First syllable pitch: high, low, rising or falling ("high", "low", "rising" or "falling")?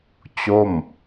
falling